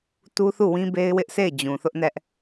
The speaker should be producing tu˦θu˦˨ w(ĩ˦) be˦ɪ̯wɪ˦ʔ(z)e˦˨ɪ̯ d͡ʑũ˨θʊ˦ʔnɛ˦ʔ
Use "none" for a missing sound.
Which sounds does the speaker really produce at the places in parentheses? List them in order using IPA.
ĩ˦, s

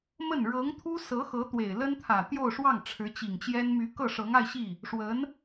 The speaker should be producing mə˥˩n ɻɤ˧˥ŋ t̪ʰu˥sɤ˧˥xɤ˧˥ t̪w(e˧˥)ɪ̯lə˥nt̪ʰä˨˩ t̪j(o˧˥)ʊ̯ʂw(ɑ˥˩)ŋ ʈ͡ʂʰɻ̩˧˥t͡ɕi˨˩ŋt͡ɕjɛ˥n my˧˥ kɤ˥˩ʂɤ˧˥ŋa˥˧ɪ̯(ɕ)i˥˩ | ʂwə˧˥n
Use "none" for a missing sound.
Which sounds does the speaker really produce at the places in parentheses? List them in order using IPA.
e˨˩, o˥˧, ɑ˥˩, ɕ

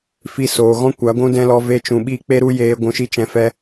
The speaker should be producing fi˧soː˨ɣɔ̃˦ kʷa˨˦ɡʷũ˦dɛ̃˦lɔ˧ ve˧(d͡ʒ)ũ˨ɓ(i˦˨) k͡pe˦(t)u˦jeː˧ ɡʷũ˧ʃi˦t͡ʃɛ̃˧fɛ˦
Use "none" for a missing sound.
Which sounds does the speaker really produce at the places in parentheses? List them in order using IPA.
t͡ʃ, i˦˨, ɾ

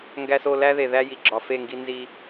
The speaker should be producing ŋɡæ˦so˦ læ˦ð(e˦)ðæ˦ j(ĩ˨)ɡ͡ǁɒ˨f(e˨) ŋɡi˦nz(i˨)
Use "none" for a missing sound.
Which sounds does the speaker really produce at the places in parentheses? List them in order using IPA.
e˨, i˨, e˦˨, i˦

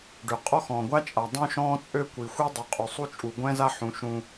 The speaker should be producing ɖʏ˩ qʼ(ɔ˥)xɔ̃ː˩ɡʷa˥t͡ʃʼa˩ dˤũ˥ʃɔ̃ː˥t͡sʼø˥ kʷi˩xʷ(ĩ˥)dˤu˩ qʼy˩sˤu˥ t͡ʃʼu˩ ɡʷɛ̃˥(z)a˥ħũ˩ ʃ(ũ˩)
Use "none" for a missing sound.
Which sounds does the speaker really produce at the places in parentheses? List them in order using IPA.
ɔ˥, i˥, z, ũ˩

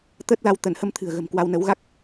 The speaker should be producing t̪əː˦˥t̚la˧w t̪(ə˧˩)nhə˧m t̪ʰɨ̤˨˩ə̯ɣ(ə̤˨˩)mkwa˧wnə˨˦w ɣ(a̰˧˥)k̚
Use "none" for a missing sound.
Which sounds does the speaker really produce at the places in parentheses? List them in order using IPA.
ə˧˩, ə̤˨˩, a˦˥

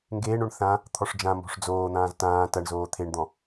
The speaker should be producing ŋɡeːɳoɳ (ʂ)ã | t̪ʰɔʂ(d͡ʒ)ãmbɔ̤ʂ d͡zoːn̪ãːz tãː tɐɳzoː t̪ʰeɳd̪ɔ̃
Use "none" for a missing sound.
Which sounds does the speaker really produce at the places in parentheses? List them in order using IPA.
θ, d͡ʒ

